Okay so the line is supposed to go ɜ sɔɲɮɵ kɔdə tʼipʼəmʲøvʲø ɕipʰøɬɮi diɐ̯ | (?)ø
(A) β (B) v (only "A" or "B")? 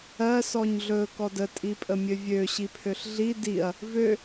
B